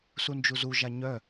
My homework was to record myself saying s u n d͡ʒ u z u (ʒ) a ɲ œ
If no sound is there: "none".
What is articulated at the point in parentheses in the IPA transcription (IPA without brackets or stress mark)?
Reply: ʒ